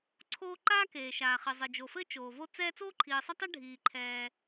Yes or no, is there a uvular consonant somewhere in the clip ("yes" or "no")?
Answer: yes